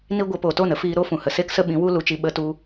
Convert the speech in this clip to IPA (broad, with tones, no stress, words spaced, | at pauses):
ni˦ ɡʷe˧po˨ to˦˨nə˦fiː˧ ɾo˦fũ˨hə˨ se˦ksə˦ ɓĩ˨˦wu˦ lu˧t͡ʃi˧ ɓə˧tu˧